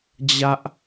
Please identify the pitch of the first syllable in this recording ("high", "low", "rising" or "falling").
high